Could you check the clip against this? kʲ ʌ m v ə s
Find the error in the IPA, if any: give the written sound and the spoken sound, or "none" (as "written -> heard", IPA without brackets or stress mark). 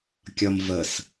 none